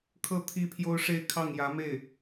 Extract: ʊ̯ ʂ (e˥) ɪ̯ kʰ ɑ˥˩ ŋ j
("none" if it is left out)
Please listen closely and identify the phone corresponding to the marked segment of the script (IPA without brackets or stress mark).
e˥˧